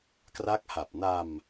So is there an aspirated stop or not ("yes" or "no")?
no